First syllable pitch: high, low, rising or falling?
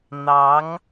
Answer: rising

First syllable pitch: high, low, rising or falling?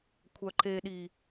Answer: low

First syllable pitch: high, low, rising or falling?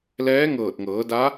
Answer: rising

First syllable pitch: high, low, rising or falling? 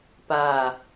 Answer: low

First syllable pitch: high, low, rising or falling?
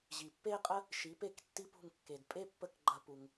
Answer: low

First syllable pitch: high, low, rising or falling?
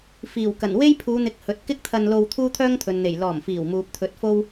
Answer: low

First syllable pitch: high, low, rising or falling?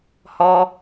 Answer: high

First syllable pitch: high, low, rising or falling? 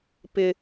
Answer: low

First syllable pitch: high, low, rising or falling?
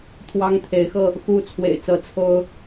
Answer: high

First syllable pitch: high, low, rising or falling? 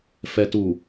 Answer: low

